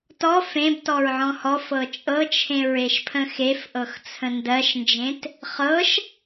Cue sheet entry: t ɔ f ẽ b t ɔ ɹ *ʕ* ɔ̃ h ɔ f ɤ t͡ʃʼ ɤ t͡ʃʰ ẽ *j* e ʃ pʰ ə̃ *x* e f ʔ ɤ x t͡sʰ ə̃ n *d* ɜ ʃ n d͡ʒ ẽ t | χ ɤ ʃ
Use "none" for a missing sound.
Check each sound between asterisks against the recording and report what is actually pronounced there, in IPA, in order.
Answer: ʕ, ɹ, x, d

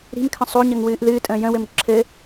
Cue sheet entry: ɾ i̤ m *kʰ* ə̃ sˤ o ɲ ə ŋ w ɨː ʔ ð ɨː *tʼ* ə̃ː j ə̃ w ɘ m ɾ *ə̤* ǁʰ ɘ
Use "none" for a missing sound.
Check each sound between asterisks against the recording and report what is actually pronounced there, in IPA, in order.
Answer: kʰ, tʼ, ə̤

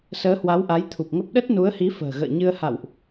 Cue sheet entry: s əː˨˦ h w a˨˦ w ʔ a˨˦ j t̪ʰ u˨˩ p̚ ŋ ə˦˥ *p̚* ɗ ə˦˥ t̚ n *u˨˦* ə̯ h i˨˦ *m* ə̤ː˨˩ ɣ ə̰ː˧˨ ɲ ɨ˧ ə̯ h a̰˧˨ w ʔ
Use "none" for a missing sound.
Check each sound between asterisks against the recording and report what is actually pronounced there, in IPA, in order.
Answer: p̚, u˨˦, f

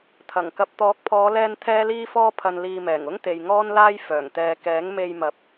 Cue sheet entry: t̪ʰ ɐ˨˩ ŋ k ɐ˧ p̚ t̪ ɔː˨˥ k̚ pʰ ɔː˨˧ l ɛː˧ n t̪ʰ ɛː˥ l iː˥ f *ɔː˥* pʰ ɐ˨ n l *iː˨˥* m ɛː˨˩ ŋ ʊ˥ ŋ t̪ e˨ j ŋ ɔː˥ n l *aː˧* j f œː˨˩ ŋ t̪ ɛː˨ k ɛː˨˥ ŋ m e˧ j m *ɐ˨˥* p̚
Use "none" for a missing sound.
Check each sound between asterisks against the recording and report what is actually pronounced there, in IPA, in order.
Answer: ɔː˥, iː˨, aː˥, ɐ˨˥

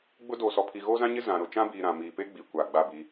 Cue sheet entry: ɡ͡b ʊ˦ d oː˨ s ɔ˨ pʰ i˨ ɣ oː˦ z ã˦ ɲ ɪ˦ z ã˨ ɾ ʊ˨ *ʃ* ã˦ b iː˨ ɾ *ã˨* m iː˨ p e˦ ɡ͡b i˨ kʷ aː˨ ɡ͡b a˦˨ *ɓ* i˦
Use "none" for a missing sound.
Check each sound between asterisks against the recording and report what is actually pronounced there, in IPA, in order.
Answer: t͡ʃ, ã˨, b

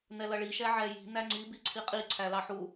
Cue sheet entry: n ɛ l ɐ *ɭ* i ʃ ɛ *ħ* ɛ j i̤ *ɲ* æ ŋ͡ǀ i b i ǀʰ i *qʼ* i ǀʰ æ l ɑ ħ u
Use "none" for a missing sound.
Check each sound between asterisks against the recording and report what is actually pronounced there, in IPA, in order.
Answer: ɭ, ʕ, n, qʼ

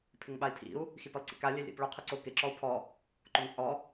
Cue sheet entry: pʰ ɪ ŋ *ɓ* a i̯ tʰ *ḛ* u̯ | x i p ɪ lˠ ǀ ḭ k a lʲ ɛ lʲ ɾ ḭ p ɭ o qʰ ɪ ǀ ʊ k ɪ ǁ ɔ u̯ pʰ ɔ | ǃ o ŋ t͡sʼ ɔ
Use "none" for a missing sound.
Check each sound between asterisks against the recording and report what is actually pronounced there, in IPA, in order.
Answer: ɓ, ḭ

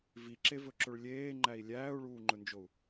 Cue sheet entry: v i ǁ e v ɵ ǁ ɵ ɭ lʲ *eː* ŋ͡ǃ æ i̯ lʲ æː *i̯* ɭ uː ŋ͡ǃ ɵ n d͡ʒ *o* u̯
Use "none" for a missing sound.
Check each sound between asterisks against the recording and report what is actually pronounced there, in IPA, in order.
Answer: eː, u̯, o

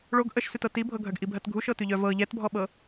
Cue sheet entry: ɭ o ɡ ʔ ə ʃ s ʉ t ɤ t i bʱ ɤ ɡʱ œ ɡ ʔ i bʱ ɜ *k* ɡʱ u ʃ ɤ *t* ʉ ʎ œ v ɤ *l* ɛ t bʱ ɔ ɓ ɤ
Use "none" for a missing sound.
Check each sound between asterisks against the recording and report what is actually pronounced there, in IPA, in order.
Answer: t, t, ʎ

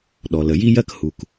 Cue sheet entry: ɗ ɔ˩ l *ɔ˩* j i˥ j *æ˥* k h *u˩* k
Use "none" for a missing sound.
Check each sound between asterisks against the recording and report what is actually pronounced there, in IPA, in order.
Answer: ə˩, ɜ˥, u˩

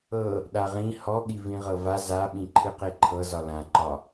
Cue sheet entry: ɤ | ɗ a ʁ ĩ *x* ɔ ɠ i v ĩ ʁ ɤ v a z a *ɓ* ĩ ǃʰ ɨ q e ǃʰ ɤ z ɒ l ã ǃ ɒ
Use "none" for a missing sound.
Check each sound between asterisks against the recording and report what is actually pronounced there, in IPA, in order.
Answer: h, ɓ

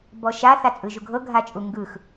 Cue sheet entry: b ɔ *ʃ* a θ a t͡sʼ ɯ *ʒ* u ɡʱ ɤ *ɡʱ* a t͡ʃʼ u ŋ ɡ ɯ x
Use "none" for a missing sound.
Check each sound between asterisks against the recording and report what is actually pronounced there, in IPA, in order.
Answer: ʃ, ʒ, ɡʱ

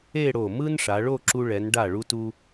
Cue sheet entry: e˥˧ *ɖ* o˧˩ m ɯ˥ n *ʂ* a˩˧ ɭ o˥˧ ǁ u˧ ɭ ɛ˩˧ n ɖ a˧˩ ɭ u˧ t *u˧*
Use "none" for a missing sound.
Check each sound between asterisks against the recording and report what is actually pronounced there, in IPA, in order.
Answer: ɽ, ʂ, u˧

